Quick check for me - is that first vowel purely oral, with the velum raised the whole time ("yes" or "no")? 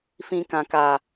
no